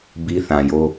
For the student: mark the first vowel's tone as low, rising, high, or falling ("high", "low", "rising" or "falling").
high